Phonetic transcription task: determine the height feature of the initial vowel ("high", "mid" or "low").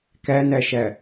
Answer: low